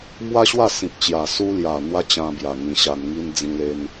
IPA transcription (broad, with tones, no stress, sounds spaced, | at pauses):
m w a˦ ɕ w a˥˧ s ĩ˨ p̚ t͡ɕ j a˨˩ s u˧ l j a˨˩ n̪ w a˦ t͡ɕ ã˧ b j a˨˩ ŋ ĩ˧ ɕ a˧ n ŋ i˦ n d͡z ĩ˧ l e˧ n